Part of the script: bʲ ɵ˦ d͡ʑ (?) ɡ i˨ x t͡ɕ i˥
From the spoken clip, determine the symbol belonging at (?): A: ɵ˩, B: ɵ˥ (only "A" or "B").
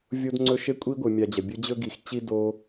B